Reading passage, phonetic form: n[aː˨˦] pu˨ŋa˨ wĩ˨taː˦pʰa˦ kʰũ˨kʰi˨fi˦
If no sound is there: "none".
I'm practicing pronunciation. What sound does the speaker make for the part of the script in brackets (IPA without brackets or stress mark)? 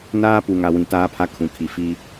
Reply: aː˦